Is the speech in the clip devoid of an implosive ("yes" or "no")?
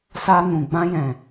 yes